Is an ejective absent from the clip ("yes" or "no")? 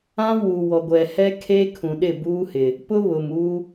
yes